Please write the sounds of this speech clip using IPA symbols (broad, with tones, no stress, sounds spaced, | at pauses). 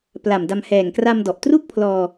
p l a˨˩ m d a˧ m h ɛː˨˩ ŋ k r a˧ m d ɔ˨˩ ʔ t r u˥˩ k̚ pʰ l ɔː˧